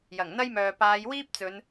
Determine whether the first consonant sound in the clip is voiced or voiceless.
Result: voiced